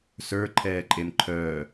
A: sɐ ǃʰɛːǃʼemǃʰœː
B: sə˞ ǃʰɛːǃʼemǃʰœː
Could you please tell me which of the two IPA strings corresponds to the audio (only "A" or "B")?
B